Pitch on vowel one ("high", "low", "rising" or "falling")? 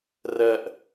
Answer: low